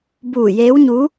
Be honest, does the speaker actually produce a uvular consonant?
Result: no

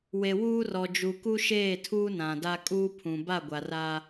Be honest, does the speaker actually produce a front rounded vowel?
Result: no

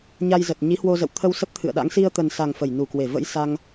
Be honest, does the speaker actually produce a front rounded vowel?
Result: no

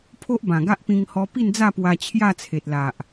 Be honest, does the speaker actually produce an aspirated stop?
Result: yes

